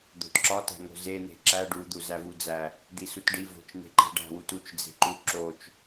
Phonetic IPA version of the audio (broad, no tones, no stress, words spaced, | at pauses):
d̪o̤tǁɒtæ̤ŋo̤ zen̪e̤ ǁæ ɖud̪u zævud͡zæ | d̪isutɖi vo̤t͡ʃn̪e̤ǃi̤ ɖæ̤wut ut͡ʃ d͡ze̤ǃu ǁot͡ʃ